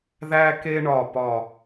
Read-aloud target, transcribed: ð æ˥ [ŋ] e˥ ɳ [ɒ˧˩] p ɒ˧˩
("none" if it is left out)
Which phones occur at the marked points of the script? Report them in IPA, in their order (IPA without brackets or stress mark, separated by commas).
k, ɒ˧˩